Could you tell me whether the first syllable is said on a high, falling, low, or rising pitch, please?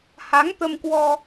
rising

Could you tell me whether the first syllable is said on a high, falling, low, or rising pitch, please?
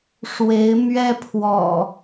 rising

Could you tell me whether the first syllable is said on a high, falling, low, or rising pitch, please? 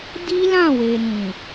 high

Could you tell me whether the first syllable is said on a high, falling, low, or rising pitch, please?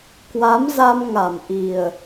rising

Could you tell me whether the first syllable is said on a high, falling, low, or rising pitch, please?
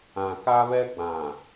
low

